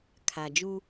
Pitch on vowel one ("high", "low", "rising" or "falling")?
low